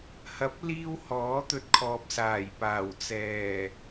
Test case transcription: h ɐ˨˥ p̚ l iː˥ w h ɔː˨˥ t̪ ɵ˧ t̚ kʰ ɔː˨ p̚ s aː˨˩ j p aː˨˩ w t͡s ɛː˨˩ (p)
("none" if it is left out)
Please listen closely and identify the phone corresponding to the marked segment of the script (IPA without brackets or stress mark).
none